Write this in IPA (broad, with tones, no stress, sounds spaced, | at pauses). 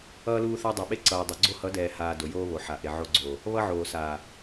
ʌː˦ l uː˦ θ a˦ dˤ ɛ˨ ɓ e˦ ǀ ʌː˨ dˤ o˨ ɡ͡ǀ o˦ h ʌ˨˦ d ɛː˨ h aː˨ d o˨ j oː˦ β o˨ ħ a˨ ʔ e˨ ʕ o˦ ɡ͡ǀ oː˨ | β ʌ˦ ʕ oː˨ s aː˨